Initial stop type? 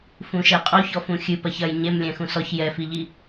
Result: ejective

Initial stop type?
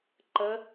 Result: click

